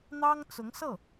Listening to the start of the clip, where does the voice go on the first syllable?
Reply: high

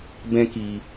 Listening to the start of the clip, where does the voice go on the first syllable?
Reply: high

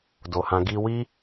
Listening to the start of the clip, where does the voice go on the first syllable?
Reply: low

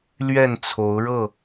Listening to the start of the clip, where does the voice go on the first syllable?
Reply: falling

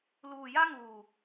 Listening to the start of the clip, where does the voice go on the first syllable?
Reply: low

